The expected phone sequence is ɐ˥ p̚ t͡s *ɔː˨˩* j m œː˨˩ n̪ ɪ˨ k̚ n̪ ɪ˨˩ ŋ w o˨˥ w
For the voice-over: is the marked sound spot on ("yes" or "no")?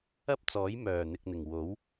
no